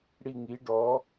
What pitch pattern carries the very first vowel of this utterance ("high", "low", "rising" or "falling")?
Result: falling